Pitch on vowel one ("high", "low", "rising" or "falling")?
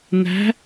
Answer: rising